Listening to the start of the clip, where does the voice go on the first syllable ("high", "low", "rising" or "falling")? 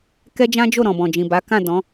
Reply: high